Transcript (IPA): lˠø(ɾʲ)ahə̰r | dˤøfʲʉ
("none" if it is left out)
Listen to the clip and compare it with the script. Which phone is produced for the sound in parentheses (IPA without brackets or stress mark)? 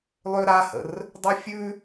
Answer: ɾ